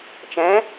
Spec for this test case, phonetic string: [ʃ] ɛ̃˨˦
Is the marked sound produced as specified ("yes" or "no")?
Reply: no